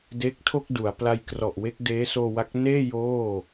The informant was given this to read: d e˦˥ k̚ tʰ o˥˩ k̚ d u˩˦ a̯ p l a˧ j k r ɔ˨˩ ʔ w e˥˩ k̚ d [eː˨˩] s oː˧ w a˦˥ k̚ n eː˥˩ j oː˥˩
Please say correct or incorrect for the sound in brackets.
incorrect